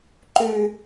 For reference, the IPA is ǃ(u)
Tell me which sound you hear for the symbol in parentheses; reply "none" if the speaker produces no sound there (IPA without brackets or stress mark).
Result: ʉ